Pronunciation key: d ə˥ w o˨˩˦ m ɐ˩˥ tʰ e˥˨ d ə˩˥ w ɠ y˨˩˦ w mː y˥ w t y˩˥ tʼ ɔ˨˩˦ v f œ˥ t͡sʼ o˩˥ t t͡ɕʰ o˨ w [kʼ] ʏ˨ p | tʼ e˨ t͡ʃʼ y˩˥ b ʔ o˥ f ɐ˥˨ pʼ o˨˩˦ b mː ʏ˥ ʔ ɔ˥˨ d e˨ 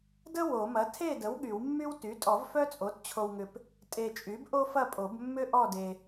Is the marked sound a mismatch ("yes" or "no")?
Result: yes